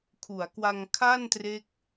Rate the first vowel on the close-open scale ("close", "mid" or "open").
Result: close